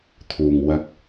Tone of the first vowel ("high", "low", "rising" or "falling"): low